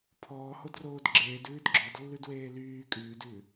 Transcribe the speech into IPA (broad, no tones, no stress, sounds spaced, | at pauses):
pʰ ɔː h o d r oː d ɡ͡ǁ eː d ʉː d ɡ͡ǁ ɔ d lː ʉ d w eː l yː kʼ ʉː d ʉː